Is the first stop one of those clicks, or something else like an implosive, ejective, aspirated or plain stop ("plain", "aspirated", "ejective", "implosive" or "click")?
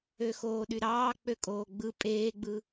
implosive